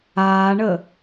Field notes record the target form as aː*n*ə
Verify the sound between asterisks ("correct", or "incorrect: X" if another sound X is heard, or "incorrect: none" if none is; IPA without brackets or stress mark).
incorrect: ɳ